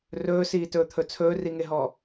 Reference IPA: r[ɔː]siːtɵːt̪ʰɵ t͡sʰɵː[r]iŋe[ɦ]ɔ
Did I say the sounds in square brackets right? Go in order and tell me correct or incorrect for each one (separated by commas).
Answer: incorrect, correct, correct